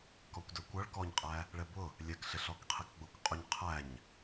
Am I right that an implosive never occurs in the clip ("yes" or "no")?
yes